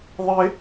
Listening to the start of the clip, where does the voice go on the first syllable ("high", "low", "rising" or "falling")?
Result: high